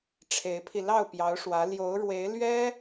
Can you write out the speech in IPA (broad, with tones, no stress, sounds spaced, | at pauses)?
ʈ͡ʂʰ e˧˥ ɪ̯ pʰ i˧ l ɑ˥˩ ʊ̯ p j ɑ˧˥ ʊ̯ ʂ w ä˧˥ l j o˧˥ ʊ̯ ɻ w e˧˥ ɪ̯ l ɥ ɛ˥